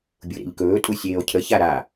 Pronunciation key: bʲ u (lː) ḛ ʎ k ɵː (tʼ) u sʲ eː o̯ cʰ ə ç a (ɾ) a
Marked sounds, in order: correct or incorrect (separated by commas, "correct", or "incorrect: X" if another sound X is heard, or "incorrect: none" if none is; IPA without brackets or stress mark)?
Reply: incorrect: ɾ, correct, correct